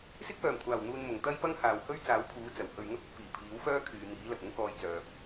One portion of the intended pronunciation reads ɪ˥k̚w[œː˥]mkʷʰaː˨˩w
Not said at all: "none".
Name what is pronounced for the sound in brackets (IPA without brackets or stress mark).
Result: œː˨˩